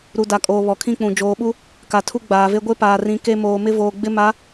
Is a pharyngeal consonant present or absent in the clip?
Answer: absent